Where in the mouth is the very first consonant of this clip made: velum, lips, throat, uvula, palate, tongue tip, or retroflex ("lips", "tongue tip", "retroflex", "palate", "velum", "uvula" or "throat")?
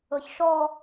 palate